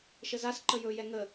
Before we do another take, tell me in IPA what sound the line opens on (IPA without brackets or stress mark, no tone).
ʃ